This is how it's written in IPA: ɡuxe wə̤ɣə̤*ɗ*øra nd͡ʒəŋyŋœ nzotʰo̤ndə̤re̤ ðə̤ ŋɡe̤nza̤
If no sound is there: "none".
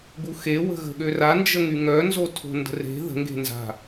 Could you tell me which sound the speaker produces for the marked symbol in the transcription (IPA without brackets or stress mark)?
ɠ